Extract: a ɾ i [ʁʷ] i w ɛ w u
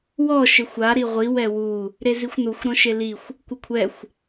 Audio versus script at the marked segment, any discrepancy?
no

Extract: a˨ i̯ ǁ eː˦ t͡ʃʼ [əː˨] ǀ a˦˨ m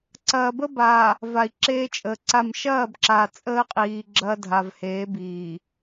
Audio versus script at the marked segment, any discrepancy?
no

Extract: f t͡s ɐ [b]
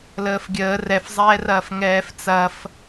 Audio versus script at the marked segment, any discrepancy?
yes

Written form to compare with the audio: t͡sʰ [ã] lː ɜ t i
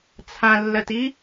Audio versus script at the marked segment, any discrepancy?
no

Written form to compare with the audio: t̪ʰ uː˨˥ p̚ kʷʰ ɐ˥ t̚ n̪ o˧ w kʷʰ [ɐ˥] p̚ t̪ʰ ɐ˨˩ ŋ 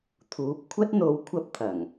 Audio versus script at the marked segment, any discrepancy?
no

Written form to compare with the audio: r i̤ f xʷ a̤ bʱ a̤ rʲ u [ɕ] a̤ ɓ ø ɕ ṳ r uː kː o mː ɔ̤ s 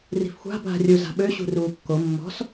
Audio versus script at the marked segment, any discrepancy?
yes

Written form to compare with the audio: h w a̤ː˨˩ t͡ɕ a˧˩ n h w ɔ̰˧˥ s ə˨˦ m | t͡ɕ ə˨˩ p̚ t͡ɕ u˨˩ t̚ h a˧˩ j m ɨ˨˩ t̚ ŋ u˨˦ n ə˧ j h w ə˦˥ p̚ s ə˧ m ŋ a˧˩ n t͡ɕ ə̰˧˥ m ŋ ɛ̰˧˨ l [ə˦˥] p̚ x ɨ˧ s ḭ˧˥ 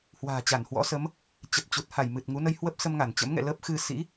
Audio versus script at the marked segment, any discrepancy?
no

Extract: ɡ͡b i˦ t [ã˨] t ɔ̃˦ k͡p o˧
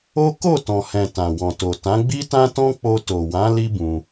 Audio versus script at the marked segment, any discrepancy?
yes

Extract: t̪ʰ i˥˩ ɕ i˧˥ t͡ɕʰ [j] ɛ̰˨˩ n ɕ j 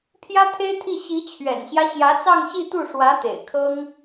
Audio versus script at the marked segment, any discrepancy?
yes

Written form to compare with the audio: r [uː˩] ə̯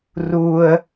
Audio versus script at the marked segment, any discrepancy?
no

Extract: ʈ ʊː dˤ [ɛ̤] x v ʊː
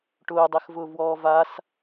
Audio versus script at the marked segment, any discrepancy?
yes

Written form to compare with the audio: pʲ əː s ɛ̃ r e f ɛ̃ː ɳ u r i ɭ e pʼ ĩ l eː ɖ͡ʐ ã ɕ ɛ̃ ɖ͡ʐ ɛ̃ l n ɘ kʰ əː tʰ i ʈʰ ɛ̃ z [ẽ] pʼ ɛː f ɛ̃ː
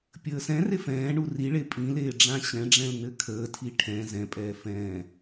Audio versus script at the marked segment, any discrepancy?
yes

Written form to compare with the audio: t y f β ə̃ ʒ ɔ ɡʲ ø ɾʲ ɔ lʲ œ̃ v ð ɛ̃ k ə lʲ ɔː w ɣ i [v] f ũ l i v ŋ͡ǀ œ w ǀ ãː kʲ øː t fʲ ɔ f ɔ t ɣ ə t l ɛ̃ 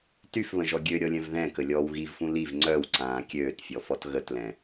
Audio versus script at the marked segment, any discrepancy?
no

